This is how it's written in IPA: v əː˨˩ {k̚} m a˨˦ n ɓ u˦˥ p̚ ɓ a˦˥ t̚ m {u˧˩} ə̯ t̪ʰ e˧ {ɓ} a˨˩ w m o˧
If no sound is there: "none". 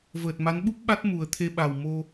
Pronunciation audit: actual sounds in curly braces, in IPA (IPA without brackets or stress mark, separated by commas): t̚, u˨˩, ɓ